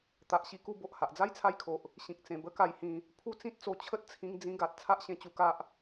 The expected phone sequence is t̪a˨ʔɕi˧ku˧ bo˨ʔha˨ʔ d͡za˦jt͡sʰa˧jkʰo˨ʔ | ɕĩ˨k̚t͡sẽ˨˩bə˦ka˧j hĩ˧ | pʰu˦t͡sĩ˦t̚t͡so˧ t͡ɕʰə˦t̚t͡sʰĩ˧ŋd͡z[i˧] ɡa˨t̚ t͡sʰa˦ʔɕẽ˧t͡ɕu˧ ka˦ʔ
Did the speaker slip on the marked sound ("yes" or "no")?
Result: yes